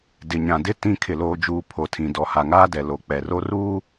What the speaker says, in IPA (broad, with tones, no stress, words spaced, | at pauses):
dɪ˨ɲã˨dɪ˦ tĩ˦˨ kʰɪ˦˨loː˦d͡ʒuː˦ pʰo˨tʰĩ˨ dɔ˨ha˨ŋaː˦dɛ˨ lo˨k͡pɛ˨ro˦ ruː˦